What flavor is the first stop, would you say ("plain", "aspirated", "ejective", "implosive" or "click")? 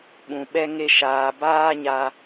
implosive